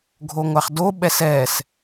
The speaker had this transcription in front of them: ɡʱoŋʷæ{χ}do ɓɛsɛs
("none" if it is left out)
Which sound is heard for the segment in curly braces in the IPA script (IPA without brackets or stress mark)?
χ